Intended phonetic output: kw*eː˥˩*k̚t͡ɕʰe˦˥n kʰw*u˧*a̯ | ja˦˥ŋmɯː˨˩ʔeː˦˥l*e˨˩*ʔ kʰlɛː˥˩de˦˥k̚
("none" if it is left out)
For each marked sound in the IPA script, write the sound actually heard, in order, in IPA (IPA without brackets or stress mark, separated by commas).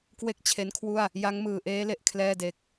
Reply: e˥˩, u˥˩, e˨˩